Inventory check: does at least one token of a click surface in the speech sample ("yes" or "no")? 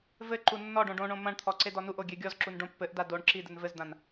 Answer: yes